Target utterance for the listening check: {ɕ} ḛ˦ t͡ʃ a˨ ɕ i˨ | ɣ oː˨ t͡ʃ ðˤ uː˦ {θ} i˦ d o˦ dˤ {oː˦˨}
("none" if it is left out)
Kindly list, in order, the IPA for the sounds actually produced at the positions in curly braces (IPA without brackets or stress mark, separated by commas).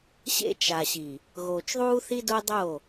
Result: ɕ, θ, o˦˨